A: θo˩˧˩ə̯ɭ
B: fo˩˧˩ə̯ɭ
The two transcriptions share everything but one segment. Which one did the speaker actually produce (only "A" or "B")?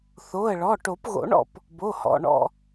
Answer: A